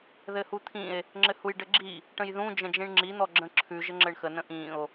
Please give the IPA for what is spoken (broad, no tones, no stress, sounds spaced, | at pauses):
ð ɘ h u t̪ʰ ĩ e̯ | ŋ͡ǁ ɘ h u j ɖ ɘ ɡ͡ǁ i | ʈ ə̃ j ð ũ d͡ʒ ə̃ d͡ʒ ĩ ɳ ŋ͡ǁ i n̪ ɔ ɡ͡ǁ ə̃ ǁʰ ʉ ʒ ɘ ŋ͡ǁ ɘ ɳ x ə n ə̃ ʔ ĩ o̯